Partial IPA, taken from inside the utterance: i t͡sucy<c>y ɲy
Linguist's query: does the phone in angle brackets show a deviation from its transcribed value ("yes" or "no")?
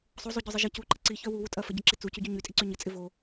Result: yes